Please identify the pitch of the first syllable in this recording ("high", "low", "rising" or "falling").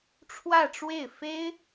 falling